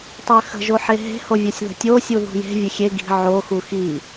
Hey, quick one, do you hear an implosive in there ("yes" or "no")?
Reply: no